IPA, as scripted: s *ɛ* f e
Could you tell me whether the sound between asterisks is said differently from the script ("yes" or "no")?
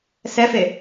no